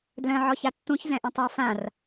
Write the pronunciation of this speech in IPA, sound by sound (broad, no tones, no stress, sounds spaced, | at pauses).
d l œ̃ ʕ ɔ ç a tː ũ ç z ɛ̃ ʔ ũ tˤ a f ã r